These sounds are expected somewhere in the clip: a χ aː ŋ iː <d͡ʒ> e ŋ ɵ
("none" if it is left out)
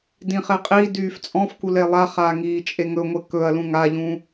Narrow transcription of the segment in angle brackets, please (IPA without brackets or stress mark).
t͡ʃʼ